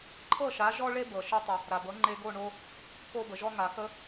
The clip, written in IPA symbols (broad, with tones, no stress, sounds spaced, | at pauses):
ǃʰ ɤ˥˩ ʃ a˩˥ ʒ ɔ˥ ɭ e˥ b ɤ˩ ʃ e˧ tˤ ə˩ | ɾ a˩ b ɤ˩˥ ŋ͡ǃ e˧ ɡ o˥˩ ɳ o˧ | k o˧ b ə˩ ʒ ɔ˧ ŋ a˩ x ə˧